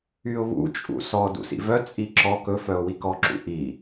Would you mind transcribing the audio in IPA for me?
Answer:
yʊ̯βṵ t͡ʃʼṵsɔ dṵsḭvœ t͡sʼiǁɔ kɵ fœʊ̯wikɔ ǁṵʔi

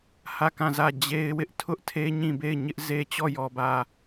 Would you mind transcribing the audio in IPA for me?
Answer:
hä˦˨kã˦˨zä˦˨ d͡ʑe˦ɪ̯wɪ˦ʔ tʰʊ˦ʔtʰe˦ ɲĩ˦˨be˦˨ɪ̯ɲɪ˦ʔ ze˦ t͡ɕɔ˦˨jɔ˨bä˨

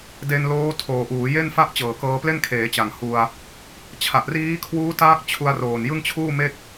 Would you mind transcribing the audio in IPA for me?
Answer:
de˧nloː˦˥tʰoː˨˩ ʔuː˩˦je˥˩n fa˥˩ʔt͡ɕɤː˨˩kɤː˧ple˥˩n kʰeː˩˦t͡ɕa˨˩ŋ hu˧a̯ | t͡ɕʰa˨˩ʔriː˦˥kʰwuː˦˥taː˦˥k̚ t͡ɕʰu˧a̯roː˨˩njɯ˥˩ŋ t͡ɕʰuː˥˩me˥˩k̚

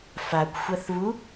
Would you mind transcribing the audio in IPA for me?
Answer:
fakʷxʷɐθβu

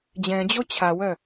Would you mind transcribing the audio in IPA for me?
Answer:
d͡ʑɛ̃d͡ʑo t͡ɕʰawœ

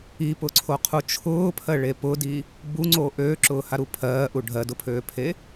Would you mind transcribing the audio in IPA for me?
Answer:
ipʊǀʰoqʰu t͡ʃʰʊːpʰɜɭe pʊdi | buŋ͡ǀoː ʔøːǁʊːhaɾu pʰɜːʔu ɖʱɜdʊpʰøːpʰe

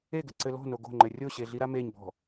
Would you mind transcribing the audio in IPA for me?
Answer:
eɡɘ ǀɘlɔ̤ noɡo̤ŋ͡ǃɘ rʲoɕeɮi ɾameɲbɔ̤

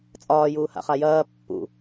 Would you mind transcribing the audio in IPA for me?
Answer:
t͡sʼɒːjuː ha̰χajɐː pːṵ

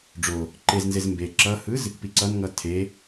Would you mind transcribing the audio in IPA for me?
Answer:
ɖ͡ʐo | ǃeznzez mbe ǁʌhɯz | piǀʌnŋʌ tʰe

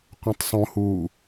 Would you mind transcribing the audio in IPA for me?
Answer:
qʷẽtˤsˤõhuː

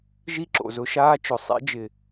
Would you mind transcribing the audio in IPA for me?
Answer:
ʒi˦ǁo̰˨zʊ˧ʃaː˦ t͡ʃʊ˨sˤḭ˨˦ d͡ʒɪ˧

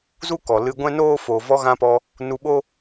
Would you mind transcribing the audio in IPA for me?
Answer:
zu˦kɔ˨lɨ˧ ɡʷɛ̃˦noː˦ foː˨vɔ˧ɣã˧pɔ˧ | nu˧ɓo˦

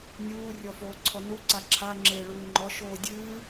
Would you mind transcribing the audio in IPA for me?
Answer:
nʲuː rʲɔfoːǀʰɔnu ǀaǁʰaŋ͡ǁeː ɭuːŋ͡ǃɔ ʃoːdʲɨː

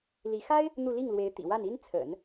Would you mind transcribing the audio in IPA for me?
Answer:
li˧˥ xa˥ɪ̯ | n̪u˥˧ li˥˩ŋlwe˧˥ɪ̯ t̪ḭ˨˩wa˥˩n i˥nt͡sʰə̰˨˩˦n

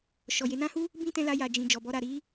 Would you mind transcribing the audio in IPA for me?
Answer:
ʃɔ˨je˧ nã˦hu˦ | bĩ˦tɛ̃˧la˧ ja˨d͡ʒĩ˨ d͡ʒɔ˨bɔ˧ɾa˨ɾi˨˦

